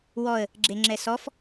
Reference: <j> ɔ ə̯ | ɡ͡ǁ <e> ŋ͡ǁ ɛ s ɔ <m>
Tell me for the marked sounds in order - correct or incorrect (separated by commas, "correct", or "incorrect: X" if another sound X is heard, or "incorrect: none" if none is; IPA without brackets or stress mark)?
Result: incorrect: w, correct, incorrect: f